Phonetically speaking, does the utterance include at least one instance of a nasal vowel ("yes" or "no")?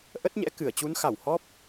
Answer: no